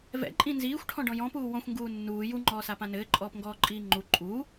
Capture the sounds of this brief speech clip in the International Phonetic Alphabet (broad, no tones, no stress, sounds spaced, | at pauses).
v ɛ̰ ǃʼ ĩ n z iː xʷ ʈʰ ɔ̃ ɖ ɔ̃ j ɔ̃ p uː w ɔ̃ xʷ ŋ ɡ uː nː uː j u ŋ͡ǃ ɔː s a p ã n ɘː ǃʼ ɔː p ŋ ɡ ɔː ǃʼ iː ŋ͡ǃ u ǃʼ uː